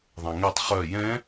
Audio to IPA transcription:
ðˤ ɛ̃ ŋ e tˤ χ œ j ɛ̃

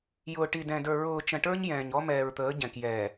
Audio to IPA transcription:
j ʊː˨ ʈ i˨ d ɛ̃˨ d ə˞˨ ɹ ʊː˨ t͡ʃ ə̃˨ ʈ ə˞˦ ɲ j ɛ̃ː˨ ɲ ɔ˦ m ɛː˨ ɹ t̪ əː˨˦ ɟ ɛ̃˨ k j ɛː˨

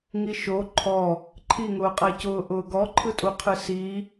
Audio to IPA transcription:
ŋ i ʃ o ǃʰ ɔ | ǃʰ i ŋ ʊː qʼ ɜ c ʊː ʔ ʊː ɡ ɔ ǃʰ ɯ tʼ u qʰ ɯ s i

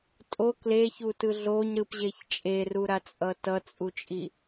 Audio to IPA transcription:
tʼ o k l e ç u t ɯ ɮ o ɲ ɾ ɯ p ʑ e ç t͡ʃʼ e r u ɾ a t͡sʼ ʌ t ʌ t͡sʼ u t͡ʃʼ i

